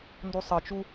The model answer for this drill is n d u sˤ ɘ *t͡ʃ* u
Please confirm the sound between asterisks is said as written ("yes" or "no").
yes